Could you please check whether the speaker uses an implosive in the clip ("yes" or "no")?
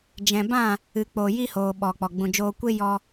yes